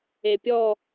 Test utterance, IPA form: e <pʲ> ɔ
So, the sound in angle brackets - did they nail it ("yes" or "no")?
yes